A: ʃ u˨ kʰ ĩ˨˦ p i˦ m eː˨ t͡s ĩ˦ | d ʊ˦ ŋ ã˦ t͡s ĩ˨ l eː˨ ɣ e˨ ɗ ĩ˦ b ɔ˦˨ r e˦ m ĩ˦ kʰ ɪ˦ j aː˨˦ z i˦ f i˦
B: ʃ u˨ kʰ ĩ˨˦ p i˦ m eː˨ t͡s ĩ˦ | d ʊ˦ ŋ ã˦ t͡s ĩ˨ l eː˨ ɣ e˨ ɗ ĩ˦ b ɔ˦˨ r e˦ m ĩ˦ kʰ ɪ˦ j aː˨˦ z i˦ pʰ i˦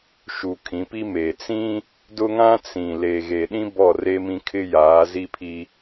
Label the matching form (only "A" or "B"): B